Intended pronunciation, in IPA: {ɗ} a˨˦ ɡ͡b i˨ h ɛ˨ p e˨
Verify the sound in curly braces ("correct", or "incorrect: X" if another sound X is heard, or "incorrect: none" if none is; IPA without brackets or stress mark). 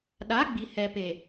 correct